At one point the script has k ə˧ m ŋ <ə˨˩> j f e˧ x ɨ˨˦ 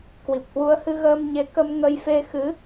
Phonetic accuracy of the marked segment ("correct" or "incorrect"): incorrect